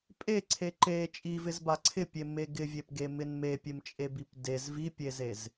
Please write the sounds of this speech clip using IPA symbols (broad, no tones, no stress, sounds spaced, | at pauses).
pʼ e ǀʰ e ǃ e t͡ʃʼ i v ɪ z b a ǀʰ ɪ pʲ e m e ɡ ɪ vʲ e p ɡ e m ɪ n m e pʲ e m t͡ʃʼ e b i p d e z v i pʲ e z e z